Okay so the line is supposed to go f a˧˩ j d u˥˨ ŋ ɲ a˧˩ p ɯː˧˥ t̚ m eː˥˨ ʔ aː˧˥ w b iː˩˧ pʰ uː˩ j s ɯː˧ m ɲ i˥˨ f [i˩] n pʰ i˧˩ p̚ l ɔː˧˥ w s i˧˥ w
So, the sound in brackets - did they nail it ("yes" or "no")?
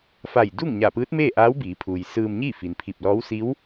yes